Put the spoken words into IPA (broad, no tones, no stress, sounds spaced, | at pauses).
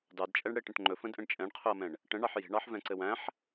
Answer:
d ɑ d t͡ʃʼ ɛ ɳ ɽ e ʈ ə̃ ʈ ŋ͡ǃ ɵ f ə̃ d ʔ ə̃ ɳ t͡ʃʼ ɛ̃ ɳ qʰ ɵ ɐ̯ m ɛ̃ ɳ | ʈ ə̃ ɳ ɑ ħ j e̤ ɳ ɑ ħ v ɛ̃ ǀ ɘ w æ̃ ħ